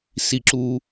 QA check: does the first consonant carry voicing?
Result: no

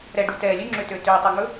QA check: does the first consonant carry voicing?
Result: yes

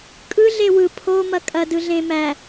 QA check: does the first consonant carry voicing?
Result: no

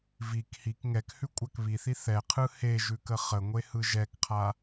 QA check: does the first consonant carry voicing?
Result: yes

